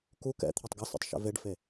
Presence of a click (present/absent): absent